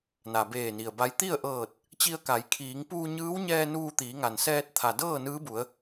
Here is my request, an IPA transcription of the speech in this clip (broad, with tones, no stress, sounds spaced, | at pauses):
n a˩ b eː˧˩ n i˩ ə̯ b a˧˥ j t̪ i˥˨ ə̯ ʔ ɤː˧˩ t̚ | t͡ɕ i˧ ə̯ k a˩˧ j kʰ iː˩˧ ŋ p uː˧ ɲ ɯː˧˥ w ɲ ɛː˧ n uː˧ t̪ iː˩˧ ŋ a˩ n s ɛː˧ t̚ t̪ʰ a˩ d ɤː˥˨ n ɯː˧˥ b u˩˧ ə̯